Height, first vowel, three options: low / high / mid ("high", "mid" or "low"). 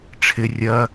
high